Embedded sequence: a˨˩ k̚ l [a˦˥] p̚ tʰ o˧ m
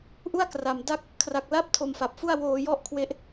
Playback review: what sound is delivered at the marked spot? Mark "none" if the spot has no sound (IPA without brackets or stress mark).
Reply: a˥˩